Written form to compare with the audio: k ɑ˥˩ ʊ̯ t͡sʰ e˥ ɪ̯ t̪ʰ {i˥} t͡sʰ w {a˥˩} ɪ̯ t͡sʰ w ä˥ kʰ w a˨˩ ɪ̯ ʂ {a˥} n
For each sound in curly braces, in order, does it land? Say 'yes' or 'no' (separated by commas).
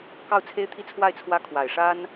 no, yes, yes